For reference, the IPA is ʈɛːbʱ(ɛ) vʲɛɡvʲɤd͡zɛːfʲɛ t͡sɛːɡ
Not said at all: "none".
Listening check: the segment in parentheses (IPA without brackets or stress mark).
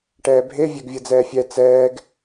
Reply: e